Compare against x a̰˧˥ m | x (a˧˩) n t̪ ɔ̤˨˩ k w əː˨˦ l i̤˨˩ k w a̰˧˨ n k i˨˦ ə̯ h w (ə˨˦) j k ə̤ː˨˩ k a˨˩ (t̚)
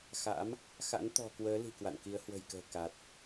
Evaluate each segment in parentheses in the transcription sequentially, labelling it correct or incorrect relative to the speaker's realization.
incorrect: a̰˧˥, incorrect: ə̤˨˩, correct

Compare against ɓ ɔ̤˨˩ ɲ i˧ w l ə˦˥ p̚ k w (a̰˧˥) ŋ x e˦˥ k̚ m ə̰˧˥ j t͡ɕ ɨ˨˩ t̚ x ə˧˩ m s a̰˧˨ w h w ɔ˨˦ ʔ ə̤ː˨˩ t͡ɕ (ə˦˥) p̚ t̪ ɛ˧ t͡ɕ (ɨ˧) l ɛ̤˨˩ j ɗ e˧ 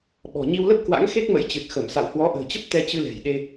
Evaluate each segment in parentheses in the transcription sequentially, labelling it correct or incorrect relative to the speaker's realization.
correct, correct, correct

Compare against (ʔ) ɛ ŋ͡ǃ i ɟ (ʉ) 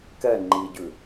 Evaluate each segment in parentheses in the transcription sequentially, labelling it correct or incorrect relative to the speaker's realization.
incorrect: k, correct

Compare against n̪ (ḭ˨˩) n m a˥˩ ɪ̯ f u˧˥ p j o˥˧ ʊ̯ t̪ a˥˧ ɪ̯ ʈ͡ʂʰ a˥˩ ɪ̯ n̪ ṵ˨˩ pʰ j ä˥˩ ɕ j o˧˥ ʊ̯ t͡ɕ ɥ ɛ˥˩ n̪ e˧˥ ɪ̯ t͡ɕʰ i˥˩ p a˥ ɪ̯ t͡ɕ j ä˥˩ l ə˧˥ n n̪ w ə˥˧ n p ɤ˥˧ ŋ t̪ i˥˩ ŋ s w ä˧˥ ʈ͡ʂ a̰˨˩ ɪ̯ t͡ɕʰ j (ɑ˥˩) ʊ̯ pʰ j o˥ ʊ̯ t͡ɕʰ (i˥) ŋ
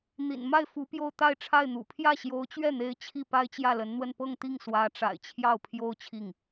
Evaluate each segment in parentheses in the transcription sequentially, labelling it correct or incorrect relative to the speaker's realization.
correct, correct, incorrect: i˥˩

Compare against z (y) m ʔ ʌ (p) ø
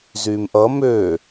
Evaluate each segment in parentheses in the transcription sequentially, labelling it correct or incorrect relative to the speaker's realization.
correct, incorrect: m

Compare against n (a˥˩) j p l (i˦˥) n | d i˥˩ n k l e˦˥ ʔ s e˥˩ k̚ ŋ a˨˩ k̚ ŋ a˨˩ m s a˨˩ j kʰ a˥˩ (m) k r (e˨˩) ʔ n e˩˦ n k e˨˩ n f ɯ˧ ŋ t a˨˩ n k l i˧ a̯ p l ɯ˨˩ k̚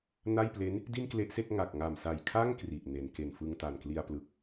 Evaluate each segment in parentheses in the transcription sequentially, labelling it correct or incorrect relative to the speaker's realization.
correct, incorrect: e˦˥, incorrect: ŋ, incorrect: i˨˩

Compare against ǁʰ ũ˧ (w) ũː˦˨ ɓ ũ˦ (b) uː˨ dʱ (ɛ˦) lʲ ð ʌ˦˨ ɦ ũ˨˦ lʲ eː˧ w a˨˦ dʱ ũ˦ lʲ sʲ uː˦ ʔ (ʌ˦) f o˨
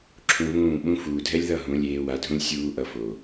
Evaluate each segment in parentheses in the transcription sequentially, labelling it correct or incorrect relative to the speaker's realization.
incorrect: β, incorrect: f, correct, incorrect: ʌ˧

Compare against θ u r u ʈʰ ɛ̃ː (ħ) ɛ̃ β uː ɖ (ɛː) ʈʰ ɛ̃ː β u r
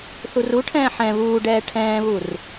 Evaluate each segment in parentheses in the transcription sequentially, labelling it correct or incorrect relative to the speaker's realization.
correct, correct

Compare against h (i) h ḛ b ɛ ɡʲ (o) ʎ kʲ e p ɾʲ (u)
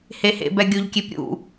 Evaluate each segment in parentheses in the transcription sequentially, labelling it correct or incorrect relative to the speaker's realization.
incorrect: e, correct, incorrect: ṵ

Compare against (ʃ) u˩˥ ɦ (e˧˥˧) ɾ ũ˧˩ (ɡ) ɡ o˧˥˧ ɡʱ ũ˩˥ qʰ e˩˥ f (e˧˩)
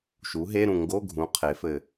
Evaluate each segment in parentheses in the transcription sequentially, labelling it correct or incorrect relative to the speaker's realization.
correct, correct, incorrect: ŋ, incorrect: ɘ˧˩

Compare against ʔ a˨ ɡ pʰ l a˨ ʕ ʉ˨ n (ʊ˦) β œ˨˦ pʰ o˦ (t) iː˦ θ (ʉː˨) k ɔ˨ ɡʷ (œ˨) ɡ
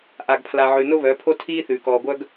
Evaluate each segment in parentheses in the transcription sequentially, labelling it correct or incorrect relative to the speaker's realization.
correct, incorrect: tʰ, correct, incorrect: œ˦

